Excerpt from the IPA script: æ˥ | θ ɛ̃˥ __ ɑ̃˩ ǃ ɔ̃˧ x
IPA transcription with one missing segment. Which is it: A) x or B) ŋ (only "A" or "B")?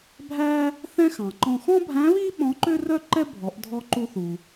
A